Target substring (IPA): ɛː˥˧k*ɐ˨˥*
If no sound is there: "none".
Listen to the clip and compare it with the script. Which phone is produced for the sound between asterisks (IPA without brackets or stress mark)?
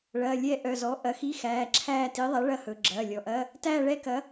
ɐ˨˥